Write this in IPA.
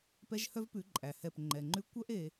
p ɛ˦ ʒ h œ˦ v p ʉ˨˦ ǃʼ æ˨ h ɛ˦˨ p ŋ͡ǃ ɛ˨ ŋ͡ǃ ʉ˦ kʷ œ˦ ʔ e˦

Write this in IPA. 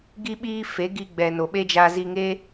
ɡ i˦ ɓ iː˦ f e˨˦ ɡ i˧ ɡ͡b ɛ˨ n o˨ ɓ e˦ d͡ʒ a˧ z i˧ ŋ e˦

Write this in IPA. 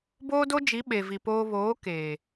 b oː˦ d o˦ d͡ʒ i˨˦ ɓ e˨ v i˨ p oː˦ β oː˨˦ k eː˨

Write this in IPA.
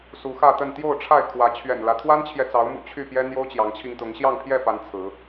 s u˨˦ x ä˥˨ t̪ ə˥˨ n t̪ j o˥˨ ʊ̯ ʈ͡ʂʰ a˥˨ ɪ̯ kʰ w ä˨˦ t͡ɕʰ ɥ ɛ̰˨˩ n l ä˦ t̪ʰ w a˦ n t͡ɕʰ j ɛ˨ t͡s ɑ˨˦ ʊ̯ m ṵ˨˩ t͡ɕʰ y˥˨ p j ɛ˦ n̪ j o˦ ʊ̯ t͡ɕ j ɑ˨˦ ŋ t͡ɕʰ i˧ ŋ t̪ ʊ˨˦ ŋ ɕ j ɑ˥˨ ŋ pʰ j ɛ˥˨ p a˨˦ n t͡sʰ ɹ̩˨˦

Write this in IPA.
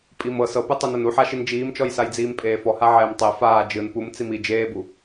pʼ i m ɤ s ɤ p ɯ tˤ e n ɤ n u ħ a ʃ i n d͡ʒ iː m t͡ʃ ɔ j s a j d͡z iː m pʼ eː f ɔ h a ʕ ɛː m tˤ e f aː d͡ʒ ɯ n p u m t͡s i m i d͡ʒ eː b u

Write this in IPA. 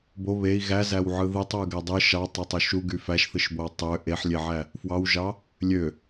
b o β e i̯ ɣ æ z æ w ʕ ɯ ð ɯ tˤ w ɯ ɡ æ dˤ ɯ ʃ ɑ tˤ e tˤ u ʃ u ɡ y f æ ʃ θ ɯ ʃ b o w tˤ ø ʔ e ħ lʲ e ʕ æ | f w ɑ w ʒ ɑ | lʲ ø

